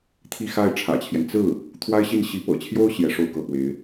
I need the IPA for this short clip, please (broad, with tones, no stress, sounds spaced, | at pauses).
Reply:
t̪ʰ i˥˧ x a˥˩ ɪ̯ ʈ͡ʂʰ ä̰˨˩ t͡ɕʰ j ɛ˦ n t͡s ɹ̩˥˩ | t̪ʰ w a˥ ɪ̯ ɕ i˥˩ n ɕ i˧˥ p ɤ̰˨˩ t͡ɕʰ j o˥ ʊ̯ ɕ j ɛ˧˥ ʂ o˥˧ ʊ̯ k ɤ˥˩ p w e˧˥ ɪ̯